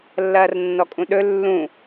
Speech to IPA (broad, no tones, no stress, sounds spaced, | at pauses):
lː ɐː r nː ɔ kʼ ũ ɗ ɵ lː ũ